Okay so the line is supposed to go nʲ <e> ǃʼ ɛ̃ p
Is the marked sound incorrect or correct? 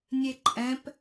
correct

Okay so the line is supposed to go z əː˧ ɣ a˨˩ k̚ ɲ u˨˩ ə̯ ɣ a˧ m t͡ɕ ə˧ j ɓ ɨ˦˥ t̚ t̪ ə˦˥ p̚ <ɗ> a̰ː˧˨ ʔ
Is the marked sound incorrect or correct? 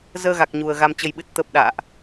correct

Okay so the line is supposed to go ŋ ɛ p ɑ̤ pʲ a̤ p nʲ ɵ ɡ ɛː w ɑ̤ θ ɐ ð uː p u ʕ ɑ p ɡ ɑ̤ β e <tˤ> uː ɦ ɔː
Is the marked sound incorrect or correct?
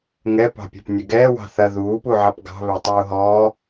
correct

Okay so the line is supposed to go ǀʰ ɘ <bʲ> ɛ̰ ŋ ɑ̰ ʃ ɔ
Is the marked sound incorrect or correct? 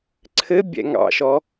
correct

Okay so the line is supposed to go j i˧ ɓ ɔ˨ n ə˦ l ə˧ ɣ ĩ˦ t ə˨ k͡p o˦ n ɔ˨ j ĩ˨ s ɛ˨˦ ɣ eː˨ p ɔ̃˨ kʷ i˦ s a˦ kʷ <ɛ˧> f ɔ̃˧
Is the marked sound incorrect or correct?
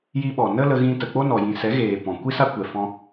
incorrect: ɛ˨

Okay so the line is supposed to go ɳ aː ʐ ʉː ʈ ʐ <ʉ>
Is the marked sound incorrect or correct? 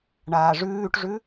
correct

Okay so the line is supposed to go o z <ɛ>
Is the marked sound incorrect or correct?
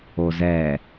correct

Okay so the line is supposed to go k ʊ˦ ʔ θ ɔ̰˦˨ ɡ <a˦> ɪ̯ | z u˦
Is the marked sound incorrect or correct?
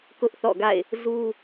incorrect: a̰˦˨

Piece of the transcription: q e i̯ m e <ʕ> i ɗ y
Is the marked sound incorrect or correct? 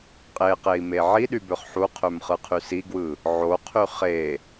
correct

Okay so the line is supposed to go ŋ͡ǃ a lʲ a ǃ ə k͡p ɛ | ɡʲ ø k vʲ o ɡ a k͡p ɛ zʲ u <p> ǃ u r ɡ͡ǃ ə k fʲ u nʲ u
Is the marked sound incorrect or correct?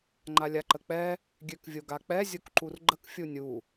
incorrect: k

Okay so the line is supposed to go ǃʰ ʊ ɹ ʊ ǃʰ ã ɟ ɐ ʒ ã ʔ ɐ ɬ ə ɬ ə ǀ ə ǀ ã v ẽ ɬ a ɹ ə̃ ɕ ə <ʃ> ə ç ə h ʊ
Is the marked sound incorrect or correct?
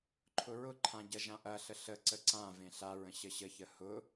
incorrect: ɕ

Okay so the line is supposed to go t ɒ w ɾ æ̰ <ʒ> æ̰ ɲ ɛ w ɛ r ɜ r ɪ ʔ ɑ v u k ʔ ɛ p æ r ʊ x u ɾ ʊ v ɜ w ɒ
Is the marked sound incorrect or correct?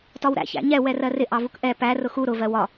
incorrect: ç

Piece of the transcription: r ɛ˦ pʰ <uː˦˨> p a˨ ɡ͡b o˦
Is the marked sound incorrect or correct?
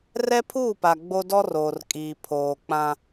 correct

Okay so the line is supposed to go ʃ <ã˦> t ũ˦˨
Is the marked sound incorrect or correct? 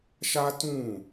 incorrect: a˦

